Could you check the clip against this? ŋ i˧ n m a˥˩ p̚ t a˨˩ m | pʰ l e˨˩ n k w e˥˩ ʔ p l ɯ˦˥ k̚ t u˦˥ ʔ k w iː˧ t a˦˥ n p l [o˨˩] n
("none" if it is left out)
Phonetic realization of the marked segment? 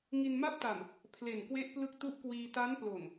o˨˩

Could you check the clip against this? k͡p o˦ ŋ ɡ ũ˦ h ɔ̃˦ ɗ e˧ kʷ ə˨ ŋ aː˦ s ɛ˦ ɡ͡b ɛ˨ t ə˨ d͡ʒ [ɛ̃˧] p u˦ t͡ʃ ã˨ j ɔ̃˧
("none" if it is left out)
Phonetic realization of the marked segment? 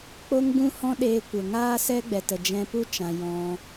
ɛ̃˧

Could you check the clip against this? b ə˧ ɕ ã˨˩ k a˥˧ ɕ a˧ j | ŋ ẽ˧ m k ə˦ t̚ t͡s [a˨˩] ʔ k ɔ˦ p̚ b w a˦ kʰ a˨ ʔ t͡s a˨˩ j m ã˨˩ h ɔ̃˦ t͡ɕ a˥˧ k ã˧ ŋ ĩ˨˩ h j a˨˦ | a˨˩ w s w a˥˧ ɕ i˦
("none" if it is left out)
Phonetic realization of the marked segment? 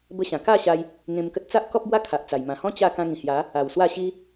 a˦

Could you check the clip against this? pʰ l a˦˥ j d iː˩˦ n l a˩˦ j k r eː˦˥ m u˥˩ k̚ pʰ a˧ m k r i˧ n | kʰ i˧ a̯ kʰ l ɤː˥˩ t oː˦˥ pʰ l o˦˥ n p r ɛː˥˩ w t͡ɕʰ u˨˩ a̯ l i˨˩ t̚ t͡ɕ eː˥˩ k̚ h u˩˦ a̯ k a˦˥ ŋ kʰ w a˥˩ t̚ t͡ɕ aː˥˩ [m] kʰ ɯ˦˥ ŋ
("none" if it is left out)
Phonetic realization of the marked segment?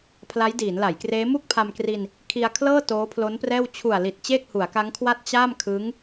m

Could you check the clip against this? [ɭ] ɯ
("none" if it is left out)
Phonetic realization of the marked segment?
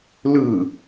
l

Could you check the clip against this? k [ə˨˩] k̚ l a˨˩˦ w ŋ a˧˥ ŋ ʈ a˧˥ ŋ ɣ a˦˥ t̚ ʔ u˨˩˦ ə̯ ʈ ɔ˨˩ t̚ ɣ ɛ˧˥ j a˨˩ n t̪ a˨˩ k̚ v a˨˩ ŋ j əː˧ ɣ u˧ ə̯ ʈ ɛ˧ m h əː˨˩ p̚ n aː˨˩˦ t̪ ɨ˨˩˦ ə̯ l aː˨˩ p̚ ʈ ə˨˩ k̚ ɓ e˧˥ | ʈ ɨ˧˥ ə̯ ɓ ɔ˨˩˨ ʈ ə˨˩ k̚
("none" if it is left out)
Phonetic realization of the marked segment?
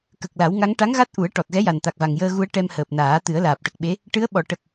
ə˨˩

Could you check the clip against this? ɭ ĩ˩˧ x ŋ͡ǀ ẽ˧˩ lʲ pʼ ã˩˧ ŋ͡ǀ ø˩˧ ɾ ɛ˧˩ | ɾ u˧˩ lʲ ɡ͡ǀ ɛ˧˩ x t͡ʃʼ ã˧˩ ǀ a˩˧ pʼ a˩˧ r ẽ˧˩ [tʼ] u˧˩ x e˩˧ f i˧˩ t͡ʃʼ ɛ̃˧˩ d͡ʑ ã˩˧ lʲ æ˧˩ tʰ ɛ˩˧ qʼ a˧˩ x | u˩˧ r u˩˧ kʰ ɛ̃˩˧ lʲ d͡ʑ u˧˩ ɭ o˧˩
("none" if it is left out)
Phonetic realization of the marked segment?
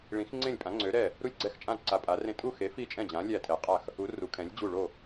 tʼ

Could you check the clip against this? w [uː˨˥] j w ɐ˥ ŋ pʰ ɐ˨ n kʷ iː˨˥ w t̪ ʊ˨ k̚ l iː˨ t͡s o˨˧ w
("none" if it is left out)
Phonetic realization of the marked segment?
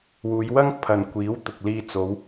uː˨˧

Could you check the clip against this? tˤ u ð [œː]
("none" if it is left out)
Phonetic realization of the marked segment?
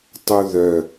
œ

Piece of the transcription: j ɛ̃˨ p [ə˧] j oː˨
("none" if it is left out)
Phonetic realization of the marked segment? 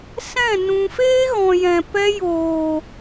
ɛ˧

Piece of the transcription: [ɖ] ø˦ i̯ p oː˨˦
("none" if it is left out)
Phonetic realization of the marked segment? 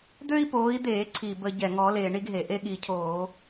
d̪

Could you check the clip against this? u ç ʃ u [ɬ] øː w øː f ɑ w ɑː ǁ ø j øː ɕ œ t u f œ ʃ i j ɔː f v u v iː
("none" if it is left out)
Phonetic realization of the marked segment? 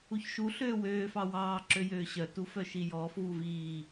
ɬ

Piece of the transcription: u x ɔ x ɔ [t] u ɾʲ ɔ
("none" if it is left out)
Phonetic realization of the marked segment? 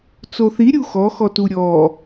t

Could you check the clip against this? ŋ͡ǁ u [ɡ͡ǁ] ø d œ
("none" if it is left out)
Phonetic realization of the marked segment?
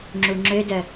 ŋ͡ǁ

